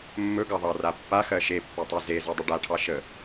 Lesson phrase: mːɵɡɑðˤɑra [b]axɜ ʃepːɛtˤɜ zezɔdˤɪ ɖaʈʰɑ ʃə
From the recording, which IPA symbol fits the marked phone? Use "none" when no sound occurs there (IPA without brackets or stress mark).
pː